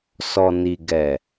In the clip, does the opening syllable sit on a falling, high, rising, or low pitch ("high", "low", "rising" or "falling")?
low